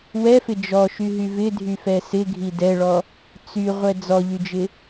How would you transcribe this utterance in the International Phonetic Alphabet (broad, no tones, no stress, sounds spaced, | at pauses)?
w ɛ f ɪ d͡ʒ ɔ ʃ y ɦ y v ɪ dʱ y f ɛ s ɪ ɡʱ i d ɛ ɭ ɔ | t͡s y ʁʷ ɛ d͡z ɔ ʎ y d͡ʒ ɪ